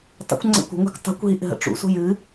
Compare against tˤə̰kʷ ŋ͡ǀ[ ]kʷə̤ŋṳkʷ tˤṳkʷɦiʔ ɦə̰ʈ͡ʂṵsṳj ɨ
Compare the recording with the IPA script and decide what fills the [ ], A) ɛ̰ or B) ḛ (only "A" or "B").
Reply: A